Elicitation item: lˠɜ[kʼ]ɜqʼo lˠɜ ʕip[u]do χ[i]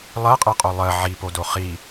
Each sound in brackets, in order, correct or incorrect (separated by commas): incorrect, incorrect, correct